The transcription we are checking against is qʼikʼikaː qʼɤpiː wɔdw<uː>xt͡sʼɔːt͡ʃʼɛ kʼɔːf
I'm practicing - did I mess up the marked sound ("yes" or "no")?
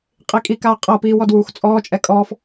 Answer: no